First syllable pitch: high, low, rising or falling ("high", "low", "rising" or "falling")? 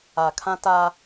low